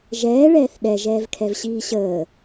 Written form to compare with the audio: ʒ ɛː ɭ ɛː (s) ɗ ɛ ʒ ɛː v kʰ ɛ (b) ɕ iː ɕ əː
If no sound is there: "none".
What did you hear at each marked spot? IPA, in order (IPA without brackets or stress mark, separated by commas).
θ, v